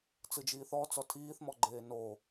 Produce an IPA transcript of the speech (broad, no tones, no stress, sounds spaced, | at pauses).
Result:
t͡s ɯ d͡ʒ iː θ ɔ t͡s ɔ tʰ iː θ m ɔ ɡ͡ǃ eː n o